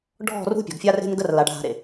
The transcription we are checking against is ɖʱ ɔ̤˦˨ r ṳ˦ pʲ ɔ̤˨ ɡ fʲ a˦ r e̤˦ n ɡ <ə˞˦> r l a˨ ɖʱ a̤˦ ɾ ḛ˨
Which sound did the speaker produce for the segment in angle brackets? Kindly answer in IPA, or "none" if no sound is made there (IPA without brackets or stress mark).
ə˦